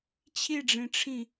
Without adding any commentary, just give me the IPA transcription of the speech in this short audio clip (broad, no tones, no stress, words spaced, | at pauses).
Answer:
t͡ɕʰiɖ͡ʐĩʈ͡ʂʰĩ